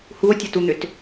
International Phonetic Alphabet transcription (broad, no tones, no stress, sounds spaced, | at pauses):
h u o̯ tʲ ɐ t u n̪ ʏ t